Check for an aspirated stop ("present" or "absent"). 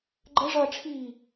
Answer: present